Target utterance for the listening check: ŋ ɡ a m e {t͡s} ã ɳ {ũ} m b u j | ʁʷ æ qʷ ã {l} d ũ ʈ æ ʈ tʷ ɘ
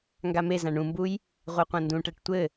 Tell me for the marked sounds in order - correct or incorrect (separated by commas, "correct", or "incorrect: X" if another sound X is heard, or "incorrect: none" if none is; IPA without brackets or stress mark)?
incorrect: z, correct, incorrect: n